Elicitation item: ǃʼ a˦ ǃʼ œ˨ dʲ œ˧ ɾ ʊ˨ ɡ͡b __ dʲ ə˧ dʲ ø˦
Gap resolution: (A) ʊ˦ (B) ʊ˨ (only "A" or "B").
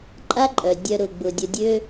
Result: B